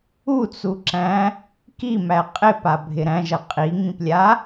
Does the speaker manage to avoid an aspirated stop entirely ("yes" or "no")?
yes